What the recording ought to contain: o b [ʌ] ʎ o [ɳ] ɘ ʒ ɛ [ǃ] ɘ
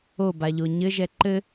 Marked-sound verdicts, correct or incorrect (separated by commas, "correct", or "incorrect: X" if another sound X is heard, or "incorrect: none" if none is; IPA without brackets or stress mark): incorrect: a, incorrect: ɲ, correct